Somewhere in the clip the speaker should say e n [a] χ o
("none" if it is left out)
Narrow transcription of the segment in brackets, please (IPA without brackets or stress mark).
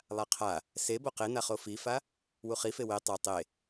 a